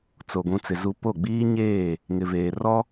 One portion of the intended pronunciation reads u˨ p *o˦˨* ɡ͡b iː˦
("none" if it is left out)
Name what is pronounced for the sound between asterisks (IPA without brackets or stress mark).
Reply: o˦˨